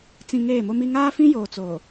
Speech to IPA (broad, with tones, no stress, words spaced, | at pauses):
t͡sĩ˨ ŋeː˦˨mo˦mi˦ ŋaː˦fĩ˦joː˨ t͡soː˨